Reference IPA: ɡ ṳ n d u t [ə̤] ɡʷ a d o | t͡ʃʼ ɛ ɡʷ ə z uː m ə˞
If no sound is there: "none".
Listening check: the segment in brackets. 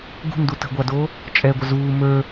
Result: ə̤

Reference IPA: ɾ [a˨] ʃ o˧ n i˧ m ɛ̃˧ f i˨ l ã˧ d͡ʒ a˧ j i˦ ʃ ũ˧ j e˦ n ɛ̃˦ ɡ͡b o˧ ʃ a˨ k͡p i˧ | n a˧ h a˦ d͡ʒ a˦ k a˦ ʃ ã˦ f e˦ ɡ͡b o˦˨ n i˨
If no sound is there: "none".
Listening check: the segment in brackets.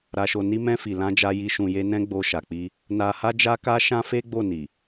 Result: a˧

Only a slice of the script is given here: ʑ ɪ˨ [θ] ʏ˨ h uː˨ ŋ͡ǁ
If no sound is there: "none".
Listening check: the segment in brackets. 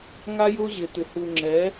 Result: t̪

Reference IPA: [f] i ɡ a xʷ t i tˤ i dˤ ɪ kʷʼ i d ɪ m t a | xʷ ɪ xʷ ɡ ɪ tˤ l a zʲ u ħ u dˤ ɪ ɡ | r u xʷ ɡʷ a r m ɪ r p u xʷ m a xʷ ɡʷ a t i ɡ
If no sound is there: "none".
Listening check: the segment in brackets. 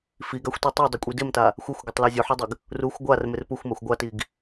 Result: f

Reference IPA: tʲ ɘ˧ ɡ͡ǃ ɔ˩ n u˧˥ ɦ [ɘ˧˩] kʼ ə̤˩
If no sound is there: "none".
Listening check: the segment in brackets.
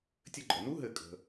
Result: ɘ˧˩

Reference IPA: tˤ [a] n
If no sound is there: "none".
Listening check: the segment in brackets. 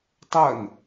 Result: ɐ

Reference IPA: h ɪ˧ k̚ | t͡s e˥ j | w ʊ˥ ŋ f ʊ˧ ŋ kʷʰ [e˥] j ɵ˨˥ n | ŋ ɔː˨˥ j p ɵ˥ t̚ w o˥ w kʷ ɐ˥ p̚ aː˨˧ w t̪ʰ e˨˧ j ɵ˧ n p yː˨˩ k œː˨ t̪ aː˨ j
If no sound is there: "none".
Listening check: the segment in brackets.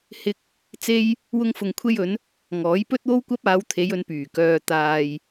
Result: e˥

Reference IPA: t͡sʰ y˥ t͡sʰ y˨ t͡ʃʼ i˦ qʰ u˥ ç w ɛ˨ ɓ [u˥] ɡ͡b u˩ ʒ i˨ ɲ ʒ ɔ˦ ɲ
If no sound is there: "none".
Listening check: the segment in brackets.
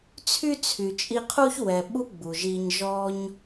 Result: u˦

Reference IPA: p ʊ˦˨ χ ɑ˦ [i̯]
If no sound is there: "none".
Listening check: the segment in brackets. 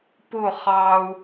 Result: u̯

